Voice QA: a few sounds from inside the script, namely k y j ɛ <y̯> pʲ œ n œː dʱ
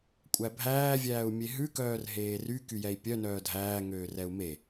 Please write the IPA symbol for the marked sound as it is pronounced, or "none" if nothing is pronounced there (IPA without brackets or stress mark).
i̯